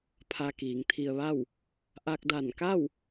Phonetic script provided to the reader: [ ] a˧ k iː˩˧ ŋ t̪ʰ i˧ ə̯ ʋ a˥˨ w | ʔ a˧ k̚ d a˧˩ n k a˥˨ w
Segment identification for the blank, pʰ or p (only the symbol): pʰ